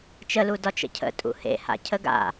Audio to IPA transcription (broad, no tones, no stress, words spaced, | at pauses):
t͡ʃəlu dɒt͡ʃə̰cʰə̰ tʼṵhḛha̰ cʰəɡa̰